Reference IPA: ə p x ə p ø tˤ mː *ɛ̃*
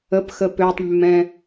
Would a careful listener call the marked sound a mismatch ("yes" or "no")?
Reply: no